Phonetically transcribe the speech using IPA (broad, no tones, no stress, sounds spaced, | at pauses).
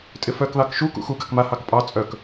tʼ ɪ f œ k ð ɑ k ʃ u k ṵ x u ɡ ɑ k m a h ɑ k pʼ ɑ t͡sʼ œ k